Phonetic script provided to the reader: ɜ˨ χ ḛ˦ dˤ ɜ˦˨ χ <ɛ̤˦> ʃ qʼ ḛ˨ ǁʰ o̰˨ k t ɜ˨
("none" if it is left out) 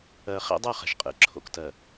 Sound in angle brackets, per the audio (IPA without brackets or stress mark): ɛ̤˨